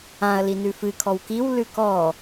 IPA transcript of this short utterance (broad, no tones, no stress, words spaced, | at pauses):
ãɐ̯ linʉfɨ kʰɔwkiw lʉkɔ